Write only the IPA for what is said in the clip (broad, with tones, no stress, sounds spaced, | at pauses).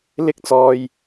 l ɪ˥ k̚ t͡s ɔː˧ j